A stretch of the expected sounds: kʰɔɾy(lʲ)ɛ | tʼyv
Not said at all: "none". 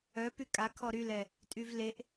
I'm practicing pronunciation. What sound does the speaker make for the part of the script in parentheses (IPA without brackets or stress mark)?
l